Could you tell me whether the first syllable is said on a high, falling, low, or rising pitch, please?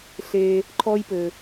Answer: high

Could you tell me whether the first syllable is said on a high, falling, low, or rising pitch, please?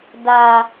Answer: high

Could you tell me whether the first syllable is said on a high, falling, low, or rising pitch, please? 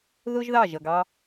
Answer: high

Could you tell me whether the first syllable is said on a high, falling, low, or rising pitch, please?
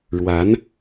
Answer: rising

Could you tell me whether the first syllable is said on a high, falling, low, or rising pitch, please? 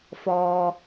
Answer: low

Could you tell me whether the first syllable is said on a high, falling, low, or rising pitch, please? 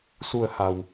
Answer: low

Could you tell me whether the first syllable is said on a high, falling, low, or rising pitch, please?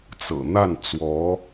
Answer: low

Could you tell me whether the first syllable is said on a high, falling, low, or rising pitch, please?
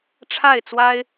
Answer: falling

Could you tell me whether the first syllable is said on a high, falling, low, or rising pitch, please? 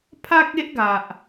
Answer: high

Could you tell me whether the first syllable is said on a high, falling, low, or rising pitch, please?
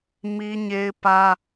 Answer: high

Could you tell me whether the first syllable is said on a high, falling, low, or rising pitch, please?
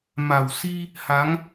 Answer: low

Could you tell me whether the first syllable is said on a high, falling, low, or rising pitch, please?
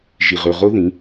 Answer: low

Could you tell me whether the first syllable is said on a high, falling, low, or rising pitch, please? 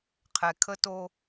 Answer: low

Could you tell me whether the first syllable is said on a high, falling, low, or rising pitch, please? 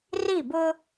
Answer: falling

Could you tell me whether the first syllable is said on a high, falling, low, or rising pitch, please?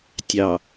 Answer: low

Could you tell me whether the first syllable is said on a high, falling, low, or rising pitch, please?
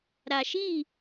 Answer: low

